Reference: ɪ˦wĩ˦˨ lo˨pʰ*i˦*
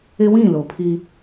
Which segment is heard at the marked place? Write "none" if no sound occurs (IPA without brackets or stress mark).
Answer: i˦